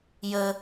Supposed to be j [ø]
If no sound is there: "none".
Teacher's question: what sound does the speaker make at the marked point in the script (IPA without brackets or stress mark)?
ə